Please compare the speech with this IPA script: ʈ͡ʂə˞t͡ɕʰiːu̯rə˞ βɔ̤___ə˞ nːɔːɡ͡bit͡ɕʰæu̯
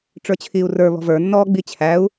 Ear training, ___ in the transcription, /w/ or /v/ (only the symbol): v